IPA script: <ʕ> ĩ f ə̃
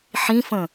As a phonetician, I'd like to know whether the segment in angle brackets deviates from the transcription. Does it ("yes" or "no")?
yes